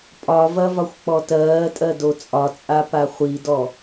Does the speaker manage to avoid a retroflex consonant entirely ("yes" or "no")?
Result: yes